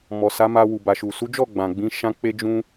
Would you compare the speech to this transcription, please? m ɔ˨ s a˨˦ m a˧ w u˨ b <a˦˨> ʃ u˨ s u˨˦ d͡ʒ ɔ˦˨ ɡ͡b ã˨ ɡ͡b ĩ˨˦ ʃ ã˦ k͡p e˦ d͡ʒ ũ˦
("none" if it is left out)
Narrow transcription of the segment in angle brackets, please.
a˨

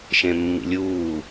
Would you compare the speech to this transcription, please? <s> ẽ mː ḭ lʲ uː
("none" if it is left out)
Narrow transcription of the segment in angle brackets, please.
ʃ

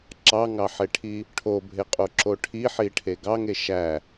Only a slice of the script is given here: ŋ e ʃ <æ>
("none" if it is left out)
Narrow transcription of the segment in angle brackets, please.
æ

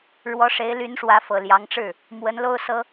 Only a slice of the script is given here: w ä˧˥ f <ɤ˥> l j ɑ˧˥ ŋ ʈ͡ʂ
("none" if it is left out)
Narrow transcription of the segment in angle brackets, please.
ɤ˨˩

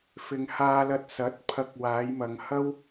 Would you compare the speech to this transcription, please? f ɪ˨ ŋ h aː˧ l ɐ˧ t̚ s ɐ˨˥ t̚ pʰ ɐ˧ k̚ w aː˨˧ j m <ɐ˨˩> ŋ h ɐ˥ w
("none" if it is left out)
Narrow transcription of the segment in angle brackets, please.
ɐ˨˧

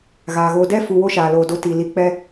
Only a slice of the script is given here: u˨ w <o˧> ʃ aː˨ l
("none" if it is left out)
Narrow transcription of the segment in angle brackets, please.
o˦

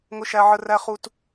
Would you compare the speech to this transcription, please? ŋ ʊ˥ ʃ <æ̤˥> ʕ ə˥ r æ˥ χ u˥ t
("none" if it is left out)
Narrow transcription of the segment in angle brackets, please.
æ˥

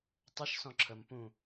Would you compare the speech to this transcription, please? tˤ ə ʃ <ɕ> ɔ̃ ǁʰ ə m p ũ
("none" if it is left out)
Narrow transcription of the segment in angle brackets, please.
s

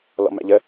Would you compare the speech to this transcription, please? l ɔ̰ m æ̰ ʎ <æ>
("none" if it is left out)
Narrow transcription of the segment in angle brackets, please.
ə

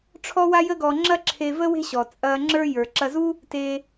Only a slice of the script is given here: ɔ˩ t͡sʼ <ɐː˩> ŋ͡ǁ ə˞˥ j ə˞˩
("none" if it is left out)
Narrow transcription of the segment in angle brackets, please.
ɐː˧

